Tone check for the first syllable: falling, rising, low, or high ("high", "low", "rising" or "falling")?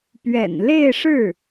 low